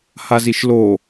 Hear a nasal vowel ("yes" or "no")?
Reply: no